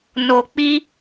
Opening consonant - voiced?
yes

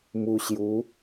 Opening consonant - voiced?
yes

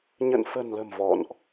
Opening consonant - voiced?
yes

